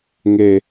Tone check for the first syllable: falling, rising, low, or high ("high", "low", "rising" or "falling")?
low